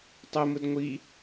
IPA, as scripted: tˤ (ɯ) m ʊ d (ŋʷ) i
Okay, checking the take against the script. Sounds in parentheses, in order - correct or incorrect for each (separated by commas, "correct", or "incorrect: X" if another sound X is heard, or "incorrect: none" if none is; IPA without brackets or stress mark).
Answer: incorrect: ʊ, correct